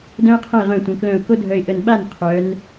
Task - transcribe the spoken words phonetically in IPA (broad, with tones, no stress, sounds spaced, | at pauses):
d œ̃˥ ɪ̯ qʰ ə̃˥˩ ɪ̯ ʁ œ̃˧˩ tʷ ə̃˩˧ k l œ̃˧˩ ʊ̯ k o˥ dʱ œ˧˩ ɪ̯ ʔ ə˧˩ n ɓ a˥˩ n qʰ œ˩˧ n